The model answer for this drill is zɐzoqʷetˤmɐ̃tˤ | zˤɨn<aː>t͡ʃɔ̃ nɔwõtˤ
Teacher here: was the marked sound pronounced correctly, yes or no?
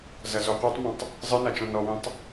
no